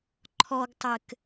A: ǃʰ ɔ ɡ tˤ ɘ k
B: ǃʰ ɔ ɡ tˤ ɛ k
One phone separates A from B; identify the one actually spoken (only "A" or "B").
A